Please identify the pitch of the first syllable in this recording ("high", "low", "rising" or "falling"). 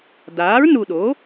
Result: rising